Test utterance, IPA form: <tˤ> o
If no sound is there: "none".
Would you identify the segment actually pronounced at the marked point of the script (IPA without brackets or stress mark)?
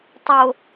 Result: tˤ